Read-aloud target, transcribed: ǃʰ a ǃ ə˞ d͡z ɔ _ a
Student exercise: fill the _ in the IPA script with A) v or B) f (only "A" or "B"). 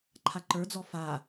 B